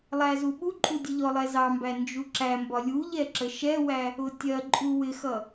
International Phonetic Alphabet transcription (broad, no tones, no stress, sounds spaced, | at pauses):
lˠ æ z u ɓ u ǃʼ u dʲ ə ʎ ɔ lˠ ɛ z ɑ m b æ n d͡ʒ u ǁ æ m b ɒ lʲ u ʎ ɛ ǁ ə ʃ ɛ w æ | ʊ tʲ ɜ ǃʼ u w ɪ x ʌ